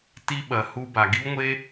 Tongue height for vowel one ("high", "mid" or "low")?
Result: high